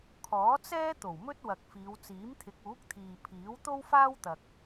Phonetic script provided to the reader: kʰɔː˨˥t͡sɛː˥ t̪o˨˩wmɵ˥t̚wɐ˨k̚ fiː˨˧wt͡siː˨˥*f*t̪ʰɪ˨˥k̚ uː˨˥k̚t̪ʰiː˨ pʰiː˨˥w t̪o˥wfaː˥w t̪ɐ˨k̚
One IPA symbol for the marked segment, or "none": m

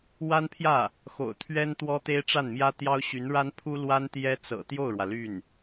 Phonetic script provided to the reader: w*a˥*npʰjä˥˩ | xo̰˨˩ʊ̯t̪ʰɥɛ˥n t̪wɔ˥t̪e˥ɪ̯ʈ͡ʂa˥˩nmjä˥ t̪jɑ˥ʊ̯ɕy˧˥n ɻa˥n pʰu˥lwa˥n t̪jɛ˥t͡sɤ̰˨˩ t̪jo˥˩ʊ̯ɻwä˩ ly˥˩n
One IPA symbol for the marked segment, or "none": a˥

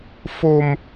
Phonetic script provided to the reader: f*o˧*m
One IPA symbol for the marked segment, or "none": o˧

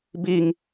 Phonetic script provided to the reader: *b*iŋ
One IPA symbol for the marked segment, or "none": b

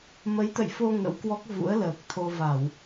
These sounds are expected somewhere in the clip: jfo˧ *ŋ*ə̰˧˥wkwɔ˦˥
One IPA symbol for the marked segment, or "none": ŋ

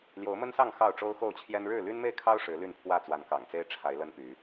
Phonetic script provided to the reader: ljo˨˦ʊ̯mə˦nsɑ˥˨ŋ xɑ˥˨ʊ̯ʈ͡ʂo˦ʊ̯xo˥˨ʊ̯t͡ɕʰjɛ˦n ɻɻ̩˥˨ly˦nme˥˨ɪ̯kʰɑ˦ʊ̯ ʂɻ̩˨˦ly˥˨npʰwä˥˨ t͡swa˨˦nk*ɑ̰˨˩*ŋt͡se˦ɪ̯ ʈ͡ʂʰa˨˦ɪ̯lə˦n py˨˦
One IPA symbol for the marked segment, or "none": ɑ̰˨˩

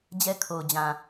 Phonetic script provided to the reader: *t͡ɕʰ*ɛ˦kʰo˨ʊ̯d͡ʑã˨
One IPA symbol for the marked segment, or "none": d͡ʑ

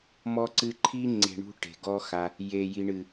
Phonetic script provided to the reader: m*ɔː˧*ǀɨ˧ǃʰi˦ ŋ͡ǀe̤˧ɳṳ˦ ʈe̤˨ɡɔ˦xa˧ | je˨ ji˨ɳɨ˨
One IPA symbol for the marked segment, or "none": ɔ˧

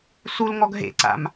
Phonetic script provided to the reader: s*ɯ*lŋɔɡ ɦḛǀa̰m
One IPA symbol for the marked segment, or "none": u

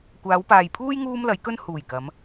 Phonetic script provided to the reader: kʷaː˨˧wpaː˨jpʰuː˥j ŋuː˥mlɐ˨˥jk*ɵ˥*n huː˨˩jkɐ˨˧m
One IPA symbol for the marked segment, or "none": ɵ˥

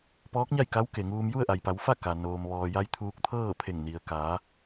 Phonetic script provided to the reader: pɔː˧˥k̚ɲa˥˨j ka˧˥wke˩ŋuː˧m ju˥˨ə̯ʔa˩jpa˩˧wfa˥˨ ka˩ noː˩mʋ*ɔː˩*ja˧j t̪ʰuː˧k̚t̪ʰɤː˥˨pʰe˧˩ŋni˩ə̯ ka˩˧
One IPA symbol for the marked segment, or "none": ɔː˩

